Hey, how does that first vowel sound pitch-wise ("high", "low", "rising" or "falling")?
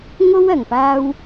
high